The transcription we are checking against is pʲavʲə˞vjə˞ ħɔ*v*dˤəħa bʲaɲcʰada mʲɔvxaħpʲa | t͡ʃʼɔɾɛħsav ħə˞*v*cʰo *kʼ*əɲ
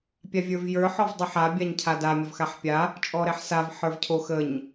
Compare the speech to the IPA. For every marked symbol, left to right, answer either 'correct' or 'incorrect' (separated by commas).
correct, correct, incorrect